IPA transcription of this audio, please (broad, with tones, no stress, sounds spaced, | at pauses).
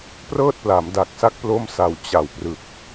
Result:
p r ɤː˥˩ t̚ p l a˩˦ m d a˨˩ k̚ s a˥˩ k̚ p l o˥˩ m s a˧ w t͡ɕ a˨˩ w p r ɯ˨˩ k̚